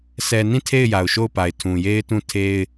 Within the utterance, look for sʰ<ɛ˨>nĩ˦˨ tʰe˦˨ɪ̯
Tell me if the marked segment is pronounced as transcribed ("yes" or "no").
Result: yes